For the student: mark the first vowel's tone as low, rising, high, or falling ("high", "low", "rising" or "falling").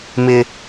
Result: high